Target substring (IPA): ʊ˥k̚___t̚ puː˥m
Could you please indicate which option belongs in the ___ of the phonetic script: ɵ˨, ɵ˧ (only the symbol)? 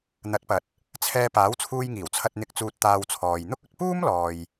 ɵ˧